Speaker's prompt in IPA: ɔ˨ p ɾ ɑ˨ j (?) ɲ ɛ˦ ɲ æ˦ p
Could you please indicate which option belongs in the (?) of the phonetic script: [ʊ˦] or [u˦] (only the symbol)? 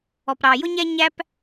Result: ʊ˦